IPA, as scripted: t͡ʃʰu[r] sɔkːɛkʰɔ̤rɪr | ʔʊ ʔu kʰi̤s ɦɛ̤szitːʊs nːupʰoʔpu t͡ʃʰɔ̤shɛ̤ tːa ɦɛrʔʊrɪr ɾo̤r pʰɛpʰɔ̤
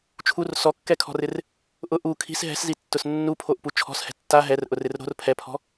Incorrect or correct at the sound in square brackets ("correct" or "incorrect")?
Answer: correct